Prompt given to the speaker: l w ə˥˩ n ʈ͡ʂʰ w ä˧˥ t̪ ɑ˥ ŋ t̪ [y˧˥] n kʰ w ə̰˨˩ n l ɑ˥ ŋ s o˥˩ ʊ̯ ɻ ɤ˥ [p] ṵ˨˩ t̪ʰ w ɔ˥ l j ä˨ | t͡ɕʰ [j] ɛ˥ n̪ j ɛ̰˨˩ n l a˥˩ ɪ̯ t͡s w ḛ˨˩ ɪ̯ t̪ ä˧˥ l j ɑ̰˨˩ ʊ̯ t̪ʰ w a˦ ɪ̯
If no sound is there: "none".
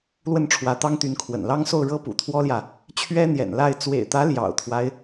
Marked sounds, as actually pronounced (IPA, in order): y˧˥, p, ɥ

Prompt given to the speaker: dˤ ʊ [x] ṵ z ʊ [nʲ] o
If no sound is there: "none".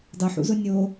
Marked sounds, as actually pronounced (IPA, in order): ħ, nʲ

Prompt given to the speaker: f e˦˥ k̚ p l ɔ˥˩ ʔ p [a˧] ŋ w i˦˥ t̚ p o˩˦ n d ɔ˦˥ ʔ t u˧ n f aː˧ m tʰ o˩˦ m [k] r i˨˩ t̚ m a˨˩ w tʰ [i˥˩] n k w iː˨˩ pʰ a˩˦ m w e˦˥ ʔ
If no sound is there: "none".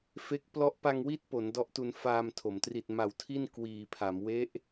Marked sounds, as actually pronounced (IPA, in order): a˧, t, i˥˩

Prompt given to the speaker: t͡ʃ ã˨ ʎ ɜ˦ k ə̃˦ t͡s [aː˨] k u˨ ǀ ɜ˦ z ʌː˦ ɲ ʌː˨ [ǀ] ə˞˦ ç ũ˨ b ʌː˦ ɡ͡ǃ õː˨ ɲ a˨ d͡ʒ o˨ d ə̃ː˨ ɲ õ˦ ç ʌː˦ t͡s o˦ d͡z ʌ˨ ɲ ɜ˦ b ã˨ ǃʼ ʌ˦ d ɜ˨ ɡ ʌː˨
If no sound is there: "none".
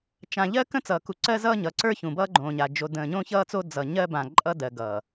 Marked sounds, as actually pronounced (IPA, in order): ʌː˨, ǀ

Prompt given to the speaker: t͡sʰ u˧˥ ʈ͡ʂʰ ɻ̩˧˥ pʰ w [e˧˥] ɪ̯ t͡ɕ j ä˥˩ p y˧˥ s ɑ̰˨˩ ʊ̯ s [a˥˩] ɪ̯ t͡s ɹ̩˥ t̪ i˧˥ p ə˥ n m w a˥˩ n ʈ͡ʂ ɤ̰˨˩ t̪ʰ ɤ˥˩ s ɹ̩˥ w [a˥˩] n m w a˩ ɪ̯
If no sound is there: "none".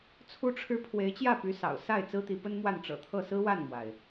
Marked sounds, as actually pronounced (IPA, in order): e˧˥, a˥˩, a˥˩

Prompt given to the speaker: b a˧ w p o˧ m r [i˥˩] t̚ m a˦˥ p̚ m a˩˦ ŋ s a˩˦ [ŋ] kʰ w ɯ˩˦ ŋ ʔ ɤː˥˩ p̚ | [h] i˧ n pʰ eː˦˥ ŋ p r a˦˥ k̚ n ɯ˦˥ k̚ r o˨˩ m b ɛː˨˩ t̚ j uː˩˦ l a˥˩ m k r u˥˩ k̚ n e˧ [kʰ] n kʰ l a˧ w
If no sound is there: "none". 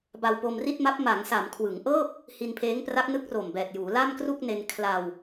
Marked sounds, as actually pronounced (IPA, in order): i˥˩, m, h, none

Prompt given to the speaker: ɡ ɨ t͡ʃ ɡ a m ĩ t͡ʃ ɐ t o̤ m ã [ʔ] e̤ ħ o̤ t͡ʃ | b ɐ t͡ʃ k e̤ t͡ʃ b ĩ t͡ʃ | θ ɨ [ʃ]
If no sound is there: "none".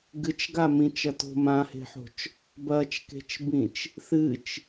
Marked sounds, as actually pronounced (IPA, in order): h, t͡ʃ

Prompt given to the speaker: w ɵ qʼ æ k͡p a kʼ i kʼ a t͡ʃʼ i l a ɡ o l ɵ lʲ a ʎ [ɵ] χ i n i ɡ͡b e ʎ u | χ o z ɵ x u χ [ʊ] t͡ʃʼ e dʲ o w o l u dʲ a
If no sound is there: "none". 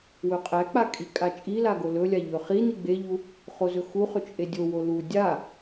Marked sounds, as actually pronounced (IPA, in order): ɵ, ɵ

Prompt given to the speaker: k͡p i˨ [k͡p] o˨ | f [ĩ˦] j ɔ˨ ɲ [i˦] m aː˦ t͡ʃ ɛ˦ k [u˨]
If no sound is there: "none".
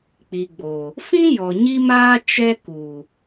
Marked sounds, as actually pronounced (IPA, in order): ɡ͡b, ĩ˦, i˦, u˨

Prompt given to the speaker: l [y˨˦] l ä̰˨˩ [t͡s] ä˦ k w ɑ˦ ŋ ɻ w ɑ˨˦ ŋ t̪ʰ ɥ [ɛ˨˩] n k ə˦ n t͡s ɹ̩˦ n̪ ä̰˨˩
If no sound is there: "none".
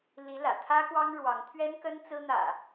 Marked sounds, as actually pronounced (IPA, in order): i˨˦, t̪ʰ, ɛ˦

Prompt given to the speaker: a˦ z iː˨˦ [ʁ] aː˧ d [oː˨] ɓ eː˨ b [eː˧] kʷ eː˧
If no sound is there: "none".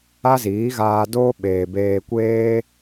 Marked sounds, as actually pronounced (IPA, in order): ɣ, oː˦, eː˧

